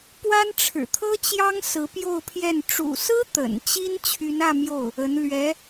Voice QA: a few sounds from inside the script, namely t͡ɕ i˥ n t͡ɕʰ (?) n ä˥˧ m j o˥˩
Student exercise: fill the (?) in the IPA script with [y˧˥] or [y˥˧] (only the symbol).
y˧˥